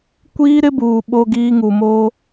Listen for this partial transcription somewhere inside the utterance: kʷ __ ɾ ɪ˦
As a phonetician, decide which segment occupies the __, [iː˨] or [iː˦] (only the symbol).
iː˦